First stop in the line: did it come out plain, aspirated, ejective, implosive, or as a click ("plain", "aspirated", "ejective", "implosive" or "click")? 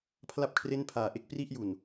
aspirated